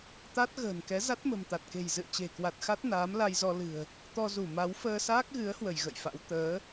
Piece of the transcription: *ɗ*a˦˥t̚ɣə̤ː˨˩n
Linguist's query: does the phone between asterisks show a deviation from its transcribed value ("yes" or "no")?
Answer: yes